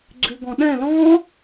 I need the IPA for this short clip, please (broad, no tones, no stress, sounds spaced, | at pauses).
ɡ͡ǀ ʉ ɡ ɔ̃ ɗ ɛ̃ l ɔ̃